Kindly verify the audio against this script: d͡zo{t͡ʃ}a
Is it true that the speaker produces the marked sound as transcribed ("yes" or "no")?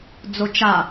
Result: yes